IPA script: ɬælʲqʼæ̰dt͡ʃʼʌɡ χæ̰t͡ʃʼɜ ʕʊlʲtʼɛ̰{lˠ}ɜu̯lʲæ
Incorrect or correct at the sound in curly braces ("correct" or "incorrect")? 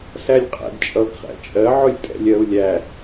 incorrect